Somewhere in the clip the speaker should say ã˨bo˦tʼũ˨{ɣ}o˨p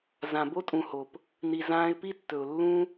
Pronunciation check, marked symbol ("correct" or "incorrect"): incorrect